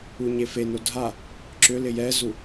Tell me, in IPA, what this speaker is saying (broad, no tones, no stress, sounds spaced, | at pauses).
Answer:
u ɲ e f e n o dʱ a | ǁ ʏ l ɪ j ɛ z u